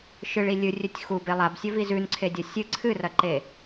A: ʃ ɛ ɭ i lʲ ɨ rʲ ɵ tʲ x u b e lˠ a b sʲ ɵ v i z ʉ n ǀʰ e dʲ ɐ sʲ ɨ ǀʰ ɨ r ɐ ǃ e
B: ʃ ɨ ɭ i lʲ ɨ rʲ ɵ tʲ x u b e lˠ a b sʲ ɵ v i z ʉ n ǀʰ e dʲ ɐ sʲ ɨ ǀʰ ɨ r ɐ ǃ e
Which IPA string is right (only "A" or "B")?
B